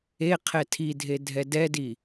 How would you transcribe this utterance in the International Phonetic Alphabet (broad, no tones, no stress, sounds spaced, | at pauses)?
e qʰ ɛ tʰ i dʱ e dʱ ɛ d ɛ d i